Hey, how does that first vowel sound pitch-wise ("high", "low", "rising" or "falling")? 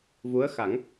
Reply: rising